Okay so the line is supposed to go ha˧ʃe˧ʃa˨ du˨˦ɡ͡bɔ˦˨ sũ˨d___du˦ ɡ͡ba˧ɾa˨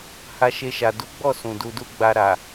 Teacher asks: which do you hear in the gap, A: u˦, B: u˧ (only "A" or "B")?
B